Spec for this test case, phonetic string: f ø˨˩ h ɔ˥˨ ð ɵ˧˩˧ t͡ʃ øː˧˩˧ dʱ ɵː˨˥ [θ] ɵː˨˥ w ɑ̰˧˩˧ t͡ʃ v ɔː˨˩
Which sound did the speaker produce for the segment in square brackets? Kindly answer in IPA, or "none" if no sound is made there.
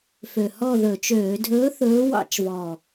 θ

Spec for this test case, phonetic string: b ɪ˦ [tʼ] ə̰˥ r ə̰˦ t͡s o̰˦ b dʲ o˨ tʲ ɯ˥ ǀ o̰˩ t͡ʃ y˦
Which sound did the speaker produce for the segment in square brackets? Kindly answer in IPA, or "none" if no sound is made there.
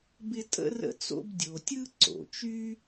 tʼ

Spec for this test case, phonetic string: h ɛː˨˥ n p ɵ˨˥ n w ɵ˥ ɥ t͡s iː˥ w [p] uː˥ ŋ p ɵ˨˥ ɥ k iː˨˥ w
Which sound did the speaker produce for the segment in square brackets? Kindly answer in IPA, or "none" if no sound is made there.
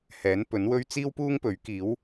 p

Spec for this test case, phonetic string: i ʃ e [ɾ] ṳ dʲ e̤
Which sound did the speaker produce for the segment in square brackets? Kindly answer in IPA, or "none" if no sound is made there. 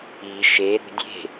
ɾ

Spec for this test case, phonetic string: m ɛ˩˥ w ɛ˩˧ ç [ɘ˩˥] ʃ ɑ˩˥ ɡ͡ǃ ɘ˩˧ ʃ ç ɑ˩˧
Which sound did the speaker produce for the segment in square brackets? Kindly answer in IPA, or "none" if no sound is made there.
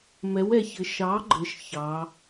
ɘ˩˧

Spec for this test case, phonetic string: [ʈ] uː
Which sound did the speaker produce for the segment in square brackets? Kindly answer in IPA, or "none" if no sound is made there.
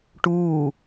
ʈ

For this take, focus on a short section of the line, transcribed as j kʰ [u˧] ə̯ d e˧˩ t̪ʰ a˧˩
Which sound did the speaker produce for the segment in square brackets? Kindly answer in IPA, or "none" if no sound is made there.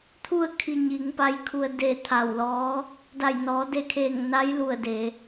u˧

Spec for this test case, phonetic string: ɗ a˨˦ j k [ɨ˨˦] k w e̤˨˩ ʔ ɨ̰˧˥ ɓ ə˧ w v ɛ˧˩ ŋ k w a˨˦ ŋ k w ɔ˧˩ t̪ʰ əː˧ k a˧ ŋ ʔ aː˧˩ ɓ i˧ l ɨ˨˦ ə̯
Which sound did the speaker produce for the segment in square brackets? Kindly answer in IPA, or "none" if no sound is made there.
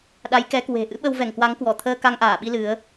ɛ˨˦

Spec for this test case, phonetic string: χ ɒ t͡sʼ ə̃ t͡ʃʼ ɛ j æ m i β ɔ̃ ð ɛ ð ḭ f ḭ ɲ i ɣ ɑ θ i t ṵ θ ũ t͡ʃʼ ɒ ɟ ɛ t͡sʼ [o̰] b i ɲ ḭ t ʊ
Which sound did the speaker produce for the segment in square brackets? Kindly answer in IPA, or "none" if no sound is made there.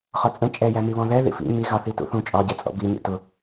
ɔ̰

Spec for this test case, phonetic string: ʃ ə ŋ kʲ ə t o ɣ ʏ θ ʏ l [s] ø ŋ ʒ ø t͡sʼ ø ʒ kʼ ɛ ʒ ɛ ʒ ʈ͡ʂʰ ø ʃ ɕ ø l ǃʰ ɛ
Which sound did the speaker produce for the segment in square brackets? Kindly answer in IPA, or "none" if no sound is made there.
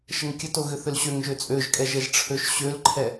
ɕ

